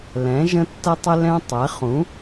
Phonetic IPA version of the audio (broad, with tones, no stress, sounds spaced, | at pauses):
l ɛ̃˨˦ ʒ ə̃˦ tː ə˦ tˤ ɪ˦ l ɛ̃˦ tˤ ɛ˨˦ χ ũ˨˦